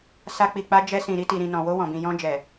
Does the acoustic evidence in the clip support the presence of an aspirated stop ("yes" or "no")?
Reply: no